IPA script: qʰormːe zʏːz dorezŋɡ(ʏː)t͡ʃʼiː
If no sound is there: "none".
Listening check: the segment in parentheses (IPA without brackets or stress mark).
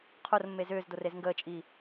əː